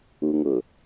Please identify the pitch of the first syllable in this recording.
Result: low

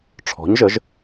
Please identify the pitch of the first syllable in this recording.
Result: rising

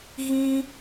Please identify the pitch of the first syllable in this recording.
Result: high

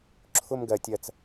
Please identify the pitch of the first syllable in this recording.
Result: high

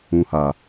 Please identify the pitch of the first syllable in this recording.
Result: low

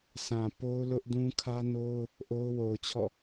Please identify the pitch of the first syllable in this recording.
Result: low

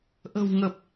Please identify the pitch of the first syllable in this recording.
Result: low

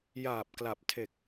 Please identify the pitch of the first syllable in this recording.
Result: low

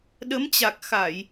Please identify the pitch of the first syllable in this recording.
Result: rising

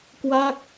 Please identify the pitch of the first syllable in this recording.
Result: falling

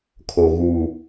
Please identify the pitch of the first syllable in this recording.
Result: low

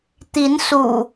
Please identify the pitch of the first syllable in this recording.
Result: rising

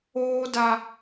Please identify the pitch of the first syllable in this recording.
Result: high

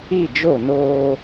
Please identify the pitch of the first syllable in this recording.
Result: falling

